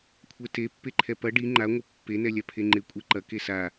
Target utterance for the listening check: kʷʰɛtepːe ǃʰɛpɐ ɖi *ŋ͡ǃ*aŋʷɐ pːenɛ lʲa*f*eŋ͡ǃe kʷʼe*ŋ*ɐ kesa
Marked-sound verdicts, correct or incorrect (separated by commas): correct, incorrect, incorrect